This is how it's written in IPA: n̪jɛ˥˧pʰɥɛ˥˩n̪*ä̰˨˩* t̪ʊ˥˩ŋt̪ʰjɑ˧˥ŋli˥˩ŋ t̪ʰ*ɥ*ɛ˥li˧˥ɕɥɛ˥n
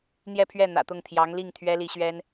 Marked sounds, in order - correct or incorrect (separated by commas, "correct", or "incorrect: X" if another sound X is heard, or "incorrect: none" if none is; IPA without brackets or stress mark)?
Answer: correct, correct